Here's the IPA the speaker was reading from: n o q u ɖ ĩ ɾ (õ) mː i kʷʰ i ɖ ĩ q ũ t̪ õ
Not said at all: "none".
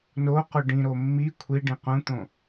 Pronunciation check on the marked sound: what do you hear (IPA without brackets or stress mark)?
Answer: o